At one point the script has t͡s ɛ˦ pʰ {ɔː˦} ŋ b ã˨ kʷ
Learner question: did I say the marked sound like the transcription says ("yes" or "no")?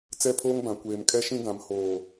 no